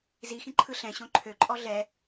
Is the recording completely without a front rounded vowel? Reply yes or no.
no